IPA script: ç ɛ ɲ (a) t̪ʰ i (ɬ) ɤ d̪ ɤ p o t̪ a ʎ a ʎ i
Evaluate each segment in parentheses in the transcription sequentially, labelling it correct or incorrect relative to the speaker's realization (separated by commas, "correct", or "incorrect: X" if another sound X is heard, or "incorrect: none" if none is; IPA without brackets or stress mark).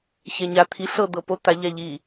correct, correct